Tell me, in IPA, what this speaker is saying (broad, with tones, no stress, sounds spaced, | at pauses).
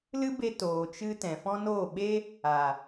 l ɨ˦ b e˧ t oː˨ t͡ʃ ɨ˧ t ɛ̃˨ f ɔ̃˦ n oː˦˨ ɓ e˦ | a˨